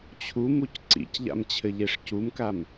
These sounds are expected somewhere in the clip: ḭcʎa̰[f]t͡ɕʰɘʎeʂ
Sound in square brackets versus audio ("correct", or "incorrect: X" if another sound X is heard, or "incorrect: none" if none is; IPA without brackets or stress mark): incorrect: m